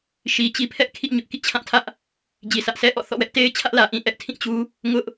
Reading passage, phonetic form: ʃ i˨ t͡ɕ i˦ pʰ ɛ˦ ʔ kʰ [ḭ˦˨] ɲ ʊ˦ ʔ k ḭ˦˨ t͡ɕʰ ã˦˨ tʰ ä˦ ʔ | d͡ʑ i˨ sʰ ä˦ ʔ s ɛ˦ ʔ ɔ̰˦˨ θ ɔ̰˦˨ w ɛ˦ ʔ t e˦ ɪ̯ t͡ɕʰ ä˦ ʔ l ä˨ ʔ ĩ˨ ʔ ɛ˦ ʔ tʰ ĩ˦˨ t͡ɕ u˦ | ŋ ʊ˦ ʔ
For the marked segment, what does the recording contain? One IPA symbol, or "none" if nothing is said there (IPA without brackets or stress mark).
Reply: ḭ˦˨